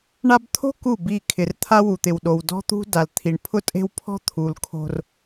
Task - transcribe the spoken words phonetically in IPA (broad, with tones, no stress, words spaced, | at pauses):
ɳa˦b t̪ʰo̤˦ ku˦˨bi˦˨ kʰɪ˨rt̪ʰa˦ wu˨t̪ɪ˨wɗo˨w dɔ̤˦t̪ṳ˦ da˨lt̪ʰi˨ɳ pʰʊ˦tʼe̤˦w pʰɔ̤˦t̪ʰu˨l kʰo̤˦r